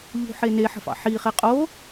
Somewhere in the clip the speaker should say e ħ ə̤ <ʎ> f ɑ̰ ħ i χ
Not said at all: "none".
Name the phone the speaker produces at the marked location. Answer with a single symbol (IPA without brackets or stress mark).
none